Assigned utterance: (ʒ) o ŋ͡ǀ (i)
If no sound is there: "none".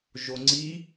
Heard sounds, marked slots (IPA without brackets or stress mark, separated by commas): ʒ, i